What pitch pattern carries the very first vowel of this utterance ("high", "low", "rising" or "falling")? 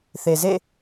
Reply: low